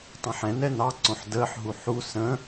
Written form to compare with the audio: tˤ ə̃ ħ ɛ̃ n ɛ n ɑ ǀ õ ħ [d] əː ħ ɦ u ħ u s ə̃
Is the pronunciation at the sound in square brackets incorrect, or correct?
correct